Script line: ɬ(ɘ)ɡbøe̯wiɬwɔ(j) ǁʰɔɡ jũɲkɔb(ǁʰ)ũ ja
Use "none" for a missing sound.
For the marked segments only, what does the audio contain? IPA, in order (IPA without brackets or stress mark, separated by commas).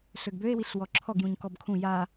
ø, none, kʰ